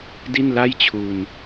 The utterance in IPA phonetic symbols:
di˥˩nla˥˩jt͡ɕʰu˧n

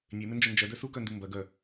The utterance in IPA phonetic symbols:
nʲemɪnd͡ʒʊ nd͡ʒœdœ sukœndu mbɐɡœ

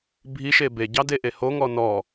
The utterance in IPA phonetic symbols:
bʱiʃe beɟɑdeʔe hoŋɔ nɔ

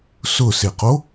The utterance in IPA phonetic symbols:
sʊseqo

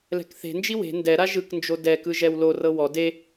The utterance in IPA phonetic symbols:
lɛ̤kθe̤nd͡ʒi we̤ ndɛɾa ʒɯknd͡ʒo dɛkɯ ʒɛwlorɤ wɔ de

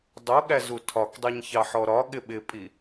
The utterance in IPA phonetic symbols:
dˤuɠæzu tʰɒkdˤiɲçɑħɔ ɾɒɠɪ ɓɪpʼi

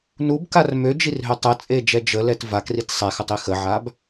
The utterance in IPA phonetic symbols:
nubkar mød͡ʒirɦø tˤət͡sʼed͡ʒɛ d͡ʒəlɛt vakrit sˤɛxətˤi xəʕab

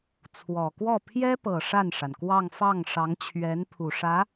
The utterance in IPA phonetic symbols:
t͡sʰwɔ˨˩kwɔ˥˩ pʰjɛ˥pɤ˨˩ ʂa˥˩nʂa˩nkwɑ˥˧ŋ fɑ˥˩ŋʂɑ˧˥ŋt͡ɕʰɥɛ˧˥n pʰu˨˩ʂä˧˥

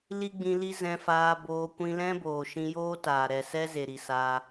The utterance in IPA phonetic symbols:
li˦ɡ͡bĩ˧li˦ zɛ̃˧faː˧boː˧ kʷĩ˧lɛ̃˦boː˨ ʃĩ˧joː˦taː˨ ɾɛ˨sɛ˦ze˨ ɾi˨saː˧

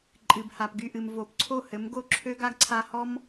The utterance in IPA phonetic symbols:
ǃʼɨ˩bha˩pɡy˥˩ʔɨ˩m vo˩˥pǀʰo˥˩hɘ˩˥mɡo˥˩ ǁʰø˥ɡa˥ɡǀʰa˧ hɔ˥m

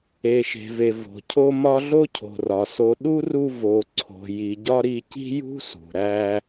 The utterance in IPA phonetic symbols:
e˩ʃe̤˩ve˩ vo̤˩cʰo˦ mɒ˦ɮo˥cʰo̤˩rɒ˩ so˨ ɗu˥ru˦ vo˨ǀʰo̤˨ ji˨ɟɒ˥ɾi˦ ci̤˥jṳ˥sṳ˩ ɾæ˦

